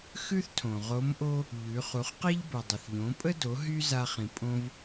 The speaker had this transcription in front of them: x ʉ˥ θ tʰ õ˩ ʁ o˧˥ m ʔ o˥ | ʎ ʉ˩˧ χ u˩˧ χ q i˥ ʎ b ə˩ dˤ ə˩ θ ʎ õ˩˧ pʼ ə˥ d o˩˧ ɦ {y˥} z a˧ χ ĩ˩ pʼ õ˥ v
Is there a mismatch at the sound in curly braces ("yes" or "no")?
no